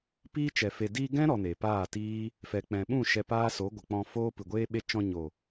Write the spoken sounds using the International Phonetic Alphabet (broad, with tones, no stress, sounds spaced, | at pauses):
p iː˦ t͡ʃ ɛ˨ f e˨ d iː˧ ɡ ɛ̃˦ ɾ ɔ˧ n e˨ p aː˦˨ t iː˦ | f ɛ˨ k͡p ɛ̃˨ ɓ ũ˦˨ ʃ ɛ˧ p aː˦ s o˨˦ ɡʷ ə˨ k͡p ɔ̃˧ f oː˦ p ɨ˨ ɡʷ eː˦ ɓ e˦ t͡ʃ ɔ̃˧ ɲ o˨